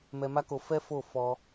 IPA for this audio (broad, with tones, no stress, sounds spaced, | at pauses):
m ɛ˧ m a˦ k o˧ f ɛ˦ f o˦˨ f ɔ˧